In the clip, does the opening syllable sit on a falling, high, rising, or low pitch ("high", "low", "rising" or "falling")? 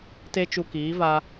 high